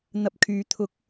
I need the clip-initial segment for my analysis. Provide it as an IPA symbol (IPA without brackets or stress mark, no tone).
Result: n̪